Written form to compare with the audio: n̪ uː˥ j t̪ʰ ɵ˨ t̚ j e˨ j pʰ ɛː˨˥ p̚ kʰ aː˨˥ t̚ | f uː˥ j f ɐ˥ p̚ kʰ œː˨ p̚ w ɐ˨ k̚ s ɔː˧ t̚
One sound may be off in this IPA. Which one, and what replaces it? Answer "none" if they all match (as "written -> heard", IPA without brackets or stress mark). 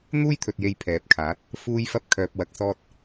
none